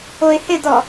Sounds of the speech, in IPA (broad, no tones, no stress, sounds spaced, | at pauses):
o ɪ̯ h ɪ d ɔ